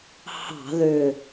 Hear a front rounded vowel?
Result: yes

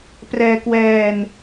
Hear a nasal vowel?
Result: no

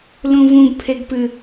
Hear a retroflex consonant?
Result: no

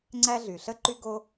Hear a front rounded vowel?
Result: yes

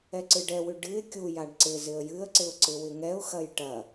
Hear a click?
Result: yes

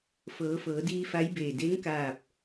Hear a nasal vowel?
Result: no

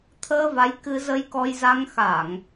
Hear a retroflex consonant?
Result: no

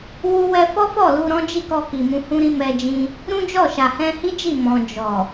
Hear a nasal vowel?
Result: yes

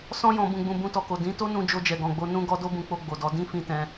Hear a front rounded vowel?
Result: no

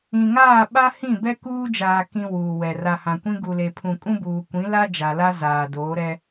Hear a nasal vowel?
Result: yes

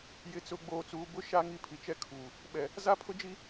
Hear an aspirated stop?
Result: yes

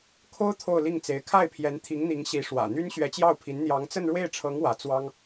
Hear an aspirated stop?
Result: yes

